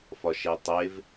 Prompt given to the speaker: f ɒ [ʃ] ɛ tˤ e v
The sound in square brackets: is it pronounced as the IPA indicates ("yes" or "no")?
yes